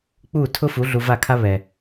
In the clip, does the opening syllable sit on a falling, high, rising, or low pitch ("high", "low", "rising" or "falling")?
falling